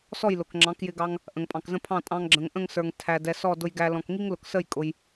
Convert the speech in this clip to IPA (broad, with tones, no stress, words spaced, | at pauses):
sɔ˥˩j lʊ˩kŋ͡ǁɑ̃˩˥kjɪ˧ɡɑ˧ŋ | ʔə̃˩ŋpʼɑ̃˩kzə̃˥˩pʰɑ̃˥˩ tʼɑ̃˧ŋɡ͡ǁə̃˩ŋʔə̃˥˩ŋsə˞˩ŋ tʰæ˩ dɛ˩sɔ˥˩ dʊ˧jɡæ˧ lɔ̃˩kŋi˥ŋ lʊ˩ksə˥˩j kʼʊ˩j